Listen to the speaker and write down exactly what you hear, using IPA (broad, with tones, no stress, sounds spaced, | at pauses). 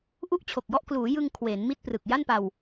ʔ u˥˩ ʔ t͡ɕʰ o˨˩ k̚ j ɔ˥˩ ʔ k l uː˩˦ j ɯ˧ ŋ kʰ w eː˩˦ n m i˥˩ t̚ p r ɯ˨˩ k̚ j a˥˩ n p a˧ w